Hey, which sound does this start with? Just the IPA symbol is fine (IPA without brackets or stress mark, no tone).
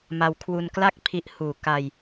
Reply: m